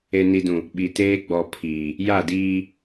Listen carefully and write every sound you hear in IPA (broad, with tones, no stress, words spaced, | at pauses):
e˨ni˨dũ˨ | ɓi˨teː˦ ɡ͡bɔ˨ pʰiː˨ | ja˦˨diː˦